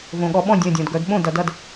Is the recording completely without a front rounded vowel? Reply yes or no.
no